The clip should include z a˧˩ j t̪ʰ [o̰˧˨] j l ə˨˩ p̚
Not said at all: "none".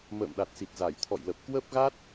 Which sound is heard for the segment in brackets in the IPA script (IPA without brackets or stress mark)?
ɔ̰˧˨